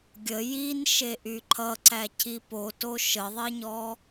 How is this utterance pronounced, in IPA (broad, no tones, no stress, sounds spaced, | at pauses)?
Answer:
ɡʲ ə j i n ʃ e ʔ y ǃʰ ʌ ǀ æ cʰ i p o t o ʃ ə ðˤ e ɲ ɔ